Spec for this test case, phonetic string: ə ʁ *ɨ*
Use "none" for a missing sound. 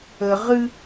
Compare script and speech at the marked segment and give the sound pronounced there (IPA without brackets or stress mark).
ɨ